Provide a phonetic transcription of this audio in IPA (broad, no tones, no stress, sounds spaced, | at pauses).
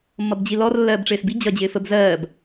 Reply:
mː ʌ b d͡ʑ i l ɔ r lː ɜː b ʈ͡ʂ ɪː s b i d͡ʑ ʌ d͡ʑ ɪː f ə b z ɜː b